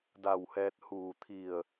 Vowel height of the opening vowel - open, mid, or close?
open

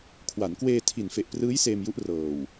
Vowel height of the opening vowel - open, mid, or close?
open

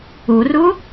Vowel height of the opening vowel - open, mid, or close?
close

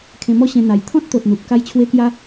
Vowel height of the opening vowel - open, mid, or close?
mid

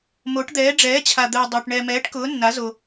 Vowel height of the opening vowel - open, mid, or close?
mid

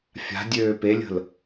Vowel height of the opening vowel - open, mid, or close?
open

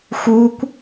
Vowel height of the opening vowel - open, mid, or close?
close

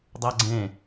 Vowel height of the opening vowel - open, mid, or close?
open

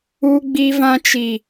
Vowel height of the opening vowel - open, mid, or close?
close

